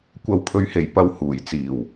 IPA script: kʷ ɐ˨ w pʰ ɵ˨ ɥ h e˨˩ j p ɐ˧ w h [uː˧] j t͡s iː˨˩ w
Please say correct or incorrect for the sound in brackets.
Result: incorrect